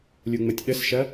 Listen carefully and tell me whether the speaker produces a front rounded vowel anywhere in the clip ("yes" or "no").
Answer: no